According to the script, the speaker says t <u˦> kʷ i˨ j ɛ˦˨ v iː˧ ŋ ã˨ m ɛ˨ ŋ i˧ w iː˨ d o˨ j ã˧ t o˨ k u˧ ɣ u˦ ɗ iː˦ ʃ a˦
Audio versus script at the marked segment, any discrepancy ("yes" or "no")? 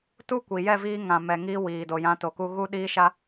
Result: no